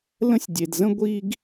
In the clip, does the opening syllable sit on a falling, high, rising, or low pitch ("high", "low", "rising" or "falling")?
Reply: high